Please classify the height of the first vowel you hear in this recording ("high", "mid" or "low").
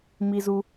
high